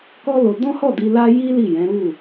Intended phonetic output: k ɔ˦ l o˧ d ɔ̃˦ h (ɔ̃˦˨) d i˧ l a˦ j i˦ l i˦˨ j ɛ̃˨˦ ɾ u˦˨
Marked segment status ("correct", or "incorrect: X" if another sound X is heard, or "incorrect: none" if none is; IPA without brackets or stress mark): incorrect: ɔ˦˨